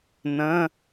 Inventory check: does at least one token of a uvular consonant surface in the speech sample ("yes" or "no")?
no